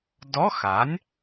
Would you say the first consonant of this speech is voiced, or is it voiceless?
voiced